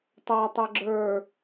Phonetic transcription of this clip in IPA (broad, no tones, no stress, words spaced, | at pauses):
tˤatˤɤ ɡ͡ǁə˞